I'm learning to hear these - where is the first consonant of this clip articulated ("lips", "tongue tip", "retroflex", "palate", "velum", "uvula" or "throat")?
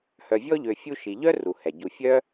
throat